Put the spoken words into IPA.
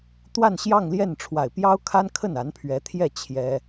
t̪wa˥˧nɕjɑ˥˧ŋljɛ˥˩n ʈ͡ʂʰwa˨˩ɪ̯pjɑ˥ʊ̯kʰa˥n kʰə˥˩na˧˥npʰɥɛ˧˥t̪ʰjɛ˥˩ t͡ɕʰjɛ˥

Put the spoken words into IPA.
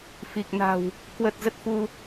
fi˨˩k̚ na̤˨˩w | kwə˨˩t̚ zə˦˥t̚fu˧

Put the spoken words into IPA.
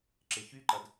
ǁeçyǃɐd

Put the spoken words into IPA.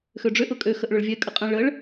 xøɖ͡ʐøʔ ʊkʼø xəʔɭʊɭvʲɛ kʼəqʼə̃ ɭəɭ

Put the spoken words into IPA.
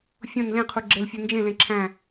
fʲõn lẽqʰu ɡ͡ǁelfʲu nd͡ʒẽlẽ ǁʰæ̃

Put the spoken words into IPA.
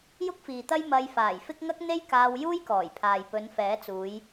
jʊ˥k̚fiː˨t̪ɐ˥j mɐ˧jfaː˨˩jfɪ˥k̚ ŋɐ˥k̚ n̪e˥jkaː˧w juː˥jkɔː˨˩jpʰaː˨jpɵ˨˧n fɛː˨˥t͡suː˨˧j

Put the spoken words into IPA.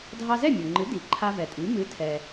dʱɑ˧zɛ˥˩mʲo˩ŋ͡ǃɨ˩˥ di˩˥ ǃʰa˧vɛ˩tʼi˩˥ mɨ˩˥tʰɛ˩

